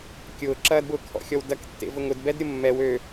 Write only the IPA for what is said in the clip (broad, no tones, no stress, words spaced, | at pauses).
kʲʊːǁɐːdbʊː kʰɔ̰xʲɔw dɐktːḛvʊŋ ʊdbɛdɾʲʊ mːɛw ø